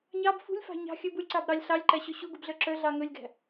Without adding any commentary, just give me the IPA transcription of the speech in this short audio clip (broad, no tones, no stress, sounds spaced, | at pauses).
ɲ ɑ b f ṳ lʲ f ɑ̤ ɲ ɑ̤ xʲ ɵ b u lʲ ǀ ɑ b ɾ ɑ lʲ ɬ ɑ lʲ ǃ æ ɕ ø ɕ u ɡ u b ɮ œ ǁ œ ɮ ɑ ŋ ɵ lʲ ɡ æ̤